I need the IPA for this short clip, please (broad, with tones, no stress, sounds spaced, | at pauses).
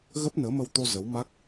ɣ ə˦˥ p̚ n əː˨˦ m ə˧ w t̪ o˧ z ə˨˦ w m a˦˥ k̚